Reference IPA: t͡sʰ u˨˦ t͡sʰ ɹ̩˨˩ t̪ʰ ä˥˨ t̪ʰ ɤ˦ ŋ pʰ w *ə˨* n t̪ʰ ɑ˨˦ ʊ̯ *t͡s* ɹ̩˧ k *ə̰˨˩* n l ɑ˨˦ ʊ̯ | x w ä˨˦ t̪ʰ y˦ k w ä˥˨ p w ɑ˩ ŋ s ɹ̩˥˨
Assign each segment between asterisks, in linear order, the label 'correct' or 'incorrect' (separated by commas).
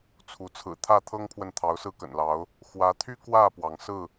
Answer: correct, incorrect, correct